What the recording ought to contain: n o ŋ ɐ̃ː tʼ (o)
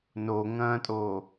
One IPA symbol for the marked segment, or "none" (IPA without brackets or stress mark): oː